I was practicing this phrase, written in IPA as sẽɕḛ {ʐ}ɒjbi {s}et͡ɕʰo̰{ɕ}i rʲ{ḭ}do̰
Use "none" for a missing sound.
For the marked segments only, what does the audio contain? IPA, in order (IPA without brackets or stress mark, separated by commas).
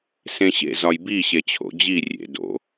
z, ɕ, d͡ʑ, ḛ